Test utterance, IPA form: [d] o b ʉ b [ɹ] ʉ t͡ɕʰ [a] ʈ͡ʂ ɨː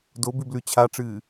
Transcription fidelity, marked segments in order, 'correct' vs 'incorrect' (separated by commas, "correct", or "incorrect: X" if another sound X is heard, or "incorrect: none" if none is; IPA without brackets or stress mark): correct, incorrect: l, correct